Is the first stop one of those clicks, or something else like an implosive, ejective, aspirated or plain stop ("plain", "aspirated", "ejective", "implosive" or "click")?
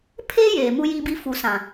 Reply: aspirated